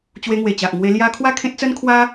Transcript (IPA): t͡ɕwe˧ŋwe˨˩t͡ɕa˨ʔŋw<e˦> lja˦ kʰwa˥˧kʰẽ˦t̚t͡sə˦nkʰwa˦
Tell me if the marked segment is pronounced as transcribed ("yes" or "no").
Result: no